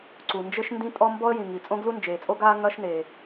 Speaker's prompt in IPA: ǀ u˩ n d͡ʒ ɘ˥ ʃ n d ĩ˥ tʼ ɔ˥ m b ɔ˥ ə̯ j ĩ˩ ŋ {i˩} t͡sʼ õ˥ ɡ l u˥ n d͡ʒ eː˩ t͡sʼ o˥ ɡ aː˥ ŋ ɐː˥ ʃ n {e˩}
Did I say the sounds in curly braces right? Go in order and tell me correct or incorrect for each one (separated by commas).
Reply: correct, correct